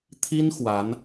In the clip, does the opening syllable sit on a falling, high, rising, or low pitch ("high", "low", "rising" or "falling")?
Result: high